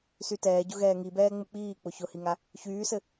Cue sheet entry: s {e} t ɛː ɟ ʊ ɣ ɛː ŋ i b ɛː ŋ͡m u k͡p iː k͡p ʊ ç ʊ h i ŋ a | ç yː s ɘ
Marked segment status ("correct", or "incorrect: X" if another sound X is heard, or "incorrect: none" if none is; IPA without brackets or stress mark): incorrect: y